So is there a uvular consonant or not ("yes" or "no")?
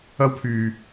no